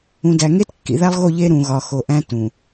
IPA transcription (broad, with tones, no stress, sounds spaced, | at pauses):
ũ˨ d æ˨ ŋ e˦ t kː ḭ˨ ð æ˦ lˠ ɣ o˦˨ ʎ e˦ ɾ ũ˨ ɣ ɒ˨ x o˨ ʔ æ̃˦ t ũ˨